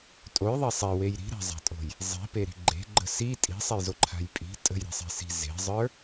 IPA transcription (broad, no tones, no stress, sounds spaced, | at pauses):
tʼ o j ðˤ e sˤ e w e j ɾ i̤ ɾ a̤ zˤ a̤ tʼ o̤ j | zˤ i̤ p e ɾ i̤ ɡ͡ǃ e̤ ɡ͡ǃ ə̤ s i tʼ i̤ sˤ e j z o ǃʰ a̤ j pʼ i̤ tʼ ə̤ j ɾ i̤ sˤ e̤ s i̤ z e̤ zˤ ə˞